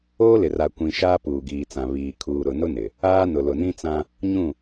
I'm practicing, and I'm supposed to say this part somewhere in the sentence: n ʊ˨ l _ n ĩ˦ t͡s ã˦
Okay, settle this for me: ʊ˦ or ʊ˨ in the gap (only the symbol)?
ʊ˨